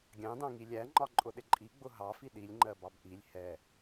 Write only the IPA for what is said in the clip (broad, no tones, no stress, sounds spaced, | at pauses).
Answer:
ɡʲ ɑ̃ d ɑ̃ ŋ i lʲ æ ŋ͡ǃ ɒ ǃʼ ʊ ɗ ɪ ǃʼ i ɡ͡b ʊ ɦ ɑ f i ɗ i lʲ ŋ͡ǃ ɜ b ɑ b ʔ i lʲ h ɛ